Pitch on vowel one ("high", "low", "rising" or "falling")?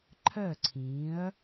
falling